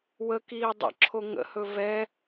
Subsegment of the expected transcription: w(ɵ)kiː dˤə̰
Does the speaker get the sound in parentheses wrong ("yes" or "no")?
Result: yes